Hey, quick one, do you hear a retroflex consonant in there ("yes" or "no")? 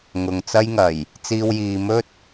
no